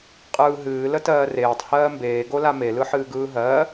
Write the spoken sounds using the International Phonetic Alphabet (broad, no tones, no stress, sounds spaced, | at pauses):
qʼ ɯː ɦ ɨː l ə t ɜː r eː tˤ h ɜː m b eː ɡ o l a m e l ɯ ħ ɨː ɡ ɯː ɦ ɜː